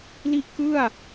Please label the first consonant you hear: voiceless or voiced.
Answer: voiced